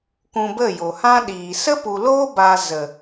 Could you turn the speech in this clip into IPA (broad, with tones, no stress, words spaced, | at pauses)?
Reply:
kũ˧bə˦˨jo˨ hã˦ɗiː˨ sə˦pu˨loː˦ ba˧zə˨